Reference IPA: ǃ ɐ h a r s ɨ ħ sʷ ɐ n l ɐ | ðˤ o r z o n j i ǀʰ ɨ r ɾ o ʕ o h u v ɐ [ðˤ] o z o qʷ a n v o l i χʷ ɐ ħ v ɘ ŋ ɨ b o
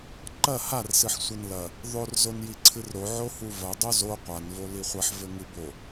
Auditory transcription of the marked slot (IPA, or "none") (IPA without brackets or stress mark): dˤ